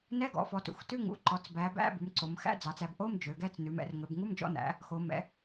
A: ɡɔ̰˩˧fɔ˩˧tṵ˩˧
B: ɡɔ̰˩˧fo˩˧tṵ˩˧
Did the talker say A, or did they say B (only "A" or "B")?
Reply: A